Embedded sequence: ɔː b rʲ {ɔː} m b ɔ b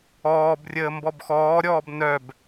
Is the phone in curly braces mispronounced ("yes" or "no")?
yes